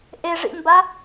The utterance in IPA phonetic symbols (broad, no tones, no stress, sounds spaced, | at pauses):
ʔ e ʐ ḭ m b a